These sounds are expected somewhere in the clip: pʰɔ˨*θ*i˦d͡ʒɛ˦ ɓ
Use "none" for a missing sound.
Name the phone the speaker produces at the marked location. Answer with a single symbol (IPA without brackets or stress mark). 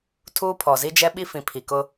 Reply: z